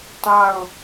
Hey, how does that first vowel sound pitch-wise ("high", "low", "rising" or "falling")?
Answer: falling